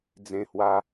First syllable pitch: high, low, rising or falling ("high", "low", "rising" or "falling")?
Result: high